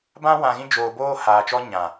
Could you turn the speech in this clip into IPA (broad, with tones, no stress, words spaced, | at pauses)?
bã˦ wã˨ɣĩ˧d͡ʒoː˨boː˧ haː˨t͡ʃɔ˦ ɲã˨